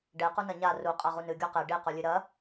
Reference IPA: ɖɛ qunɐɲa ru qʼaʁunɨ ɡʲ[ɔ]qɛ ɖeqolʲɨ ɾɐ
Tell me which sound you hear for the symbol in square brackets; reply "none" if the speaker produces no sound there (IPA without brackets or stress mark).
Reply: ɔ